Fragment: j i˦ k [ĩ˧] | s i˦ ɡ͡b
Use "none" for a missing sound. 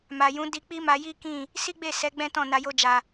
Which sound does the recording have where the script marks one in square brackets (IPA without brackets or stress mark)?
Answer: ĩ˦˨